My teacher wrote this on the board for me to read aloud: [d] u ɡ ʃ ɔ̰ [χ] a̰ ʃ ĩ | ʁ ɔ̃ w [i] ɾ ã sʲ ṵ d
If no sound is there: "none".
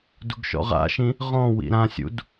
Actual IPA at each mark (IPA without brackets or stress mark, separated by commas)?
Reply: d, ʁ, ḭ